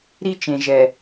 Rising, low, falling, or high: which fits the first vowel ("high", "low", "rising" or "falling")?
high